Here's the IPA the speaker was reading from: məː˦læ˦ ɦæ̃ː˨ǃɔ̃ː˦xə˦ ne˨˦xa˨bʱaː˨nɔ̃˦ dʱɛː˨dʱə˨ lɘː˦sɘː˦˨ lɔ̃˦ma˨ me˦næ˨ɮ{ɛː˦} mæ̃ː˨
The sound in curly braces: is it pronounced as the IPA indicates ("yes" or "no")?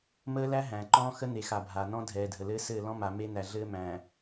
no